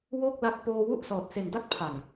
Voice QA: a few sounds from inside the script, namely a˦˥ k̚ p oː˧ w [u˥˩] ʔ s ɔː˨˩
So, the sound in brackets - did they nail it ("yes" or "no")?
yes